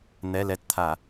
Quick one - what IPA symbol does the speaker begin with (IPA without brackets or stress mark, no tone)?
n̪